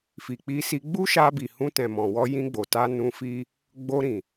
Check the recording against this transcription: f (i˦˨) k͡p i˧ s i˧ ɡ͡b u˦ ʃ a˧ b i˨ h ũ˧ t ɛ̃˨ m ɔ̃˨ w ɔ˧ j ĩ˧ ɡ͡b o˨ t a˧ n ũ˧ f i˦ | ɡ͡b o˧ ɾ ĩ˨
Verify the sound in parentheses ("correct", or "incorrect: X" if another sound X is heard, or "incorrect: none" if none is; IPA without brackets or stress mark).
incorrect: i˨